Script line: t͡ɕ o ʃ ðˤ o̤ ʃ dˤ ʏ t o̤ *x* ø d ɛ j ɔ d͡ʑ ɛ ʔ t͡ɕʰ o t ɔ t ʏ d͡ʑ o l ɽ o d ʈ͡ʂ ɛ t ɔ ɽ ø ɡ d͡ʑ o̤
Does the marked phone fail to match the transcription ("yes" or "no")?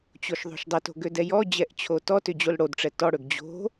yes